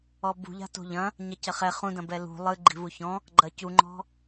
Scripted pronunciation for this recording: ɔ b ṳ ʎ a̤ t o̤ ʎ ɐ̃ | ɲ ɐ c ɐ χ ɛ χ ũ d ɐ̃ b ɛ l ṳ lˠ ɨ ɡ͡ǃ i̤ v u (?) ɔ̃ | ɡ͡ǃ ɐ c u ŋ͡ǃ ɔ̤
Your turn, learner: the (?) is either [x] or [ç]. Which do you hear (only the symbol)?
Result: ç